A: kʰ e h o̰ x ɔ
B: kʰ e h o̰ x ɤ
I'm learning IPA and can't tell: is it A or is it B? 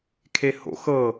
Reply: B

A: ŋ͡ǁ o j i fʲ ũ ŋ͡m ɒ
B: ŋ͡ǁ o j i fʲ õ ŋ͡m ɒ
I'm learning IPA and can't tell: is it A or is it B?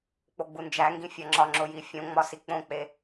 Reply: B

